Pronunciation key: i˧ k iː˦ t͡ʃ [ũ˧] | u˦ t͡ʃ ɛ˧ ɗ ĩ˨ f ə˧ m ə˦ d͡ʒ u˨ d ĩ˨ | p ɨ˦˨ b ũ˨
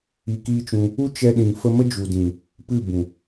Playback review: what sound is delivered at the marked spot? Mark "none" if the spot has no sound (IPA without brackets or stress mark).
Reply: ũ˧